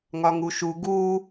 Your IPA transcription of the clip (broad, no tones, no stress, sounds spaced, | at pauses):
ŋ ɒ ŋ u ʃ u ɡ u